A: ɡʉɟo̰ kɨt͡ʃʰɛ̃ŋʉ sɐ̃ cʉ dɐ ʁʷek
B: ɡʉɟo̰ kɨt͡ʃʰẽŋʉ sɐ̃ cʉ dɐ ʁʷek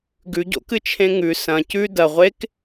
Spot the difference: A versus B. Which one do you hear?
B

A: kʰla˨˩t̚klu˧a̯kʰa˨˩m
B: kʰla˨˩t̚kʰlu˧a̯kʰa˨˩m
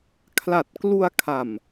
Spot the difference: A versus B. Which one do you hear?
A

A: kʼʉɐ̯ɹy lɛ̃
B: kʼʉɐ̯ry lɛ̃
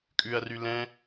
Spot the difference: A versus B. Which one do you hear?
B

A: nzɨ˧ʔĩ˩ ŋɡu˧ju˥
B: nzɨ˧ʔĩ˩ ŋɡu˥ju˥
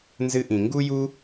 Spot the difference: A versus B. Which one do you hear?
B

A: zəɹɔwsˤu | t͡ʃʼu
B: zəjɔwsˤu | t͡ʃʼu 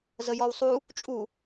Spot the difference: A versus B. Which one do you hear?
B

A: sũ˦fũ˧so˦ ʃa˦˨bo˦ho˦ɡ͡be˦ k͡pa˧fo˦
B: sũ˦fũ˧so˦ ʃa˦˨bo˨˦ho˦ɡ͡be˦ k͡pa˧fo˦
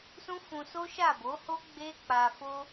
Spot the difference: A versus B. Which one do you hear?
B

